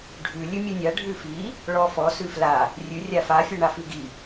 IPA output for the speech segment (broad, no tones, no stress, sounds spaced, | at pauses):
ɖʱ ʉ lʲ ʉ mʲ ʉ nʲ a ɖʱ ʉ f i | ɭ ɔ f ɔ s ʉ f l a | rʲ ʉ rʲ a f a fʲ ɔ ɳ a f ʉ ɡ i